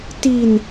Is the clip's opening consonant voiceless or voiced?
voiceless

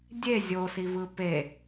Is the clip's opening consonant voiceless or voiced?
voiced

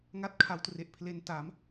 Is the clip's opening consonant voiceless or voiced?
voiced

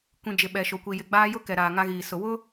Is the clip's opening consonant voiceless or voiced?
voiceless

